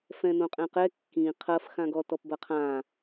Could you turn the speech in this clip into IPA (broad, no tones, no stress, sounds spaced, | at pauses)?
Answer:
f ɛ̃ n õ qʼ ɛ̃ q ɛ kː ĩ qʰ ɐ f x ã ɡ ɔ t ɔ p b ɐ qʰ ã